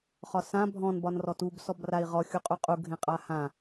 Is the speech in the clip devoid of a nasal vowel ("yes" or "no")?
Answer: no